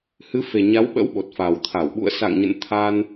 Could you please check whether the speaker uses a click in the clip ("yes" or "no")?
no